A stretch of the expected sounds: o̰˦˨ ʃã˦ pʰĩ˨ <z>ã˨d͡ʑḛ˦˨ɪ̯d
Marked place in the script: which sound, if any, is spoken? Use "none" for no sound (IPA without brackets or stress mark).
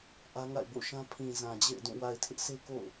z